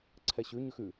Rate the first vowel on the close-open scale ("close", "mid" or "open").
mid